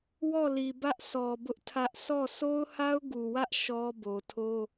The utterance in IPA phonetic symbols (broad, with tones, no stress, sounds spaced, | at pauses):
w ɔ˦˨ l i˨ b ä˦ ʔ sʰ ɔ˨ b ʊ˦ ʔ tʰ ä˦ ʔ s ɔ˦˨ sʰ o˦ ʊ̯ h a˦ ʊ̯ ɡ u˨ w ä˦ ʔ ʃ ɔ˦ b o˨ tʰ o˦